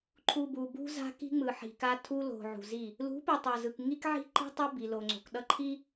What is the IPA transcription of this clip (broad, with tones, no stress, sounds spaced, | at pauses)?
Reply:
ǃʰ u˨ b u˨ b ṳ˦ z a̤˦ k i̤˦ ŋ͡m ɯ˨ ħ i̤˨ k a˦ tʰ u˦ l o̤˨ ʕ ṳ˨ z i˦˨ | l ṳ˨˦ p i˨ tˤ a˨ z ɯ˨ k ŋ i˦ k ʕ i̤˦ ǃ i̤˦ tˤ ʌ˦ b i˨ l o˨ ŋ͡ǀ o̤˨ k ɗ ʌ˦ ǃʰ i˦